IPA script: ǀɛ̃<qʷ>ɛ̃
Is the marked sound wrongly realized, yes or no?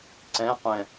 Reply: no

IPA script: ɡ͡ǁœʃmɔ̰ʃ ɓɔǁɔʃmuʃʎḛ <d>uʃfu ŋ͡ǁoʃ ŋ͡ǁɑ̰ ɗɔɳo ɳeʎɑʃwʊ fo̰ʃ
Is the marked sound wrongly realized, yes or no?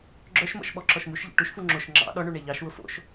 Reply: yes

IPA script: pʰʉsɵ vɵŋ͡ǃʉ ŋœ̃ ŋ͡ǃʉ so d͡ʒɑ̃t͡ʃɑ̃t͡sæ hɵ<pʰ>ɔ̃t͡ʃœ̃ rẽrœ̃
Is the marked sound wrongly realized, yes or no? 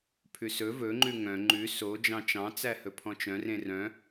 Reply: no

